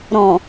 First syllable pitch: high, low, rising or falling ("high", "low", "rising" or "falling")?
low